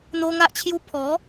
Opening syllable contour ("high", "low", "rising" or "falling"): high